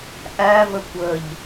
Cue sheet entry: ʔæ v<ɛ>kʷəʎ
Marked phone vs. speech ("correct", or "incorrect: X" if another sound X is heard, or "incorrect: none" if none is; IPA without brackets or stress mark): incorrect: ə